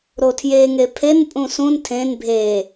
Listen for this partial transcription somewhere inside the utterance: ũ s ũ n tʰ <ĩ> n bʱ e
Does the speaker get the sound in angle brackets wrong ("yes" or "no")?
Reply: yes